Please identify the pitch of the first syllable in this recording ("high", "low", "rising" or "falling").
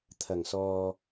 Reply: low